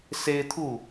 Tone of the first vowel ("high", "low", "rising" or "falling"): high